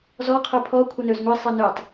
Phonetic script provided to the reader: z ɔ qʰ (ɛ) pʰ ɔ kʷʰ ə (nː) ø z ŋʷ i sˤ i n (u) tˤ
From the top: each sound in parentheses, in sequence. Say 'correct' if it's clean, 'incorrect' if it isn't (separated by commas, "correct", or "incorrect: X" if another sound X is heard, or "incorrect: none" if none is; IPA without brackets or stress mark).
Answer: incorrect: ø, incorrect: n, incorrect: ø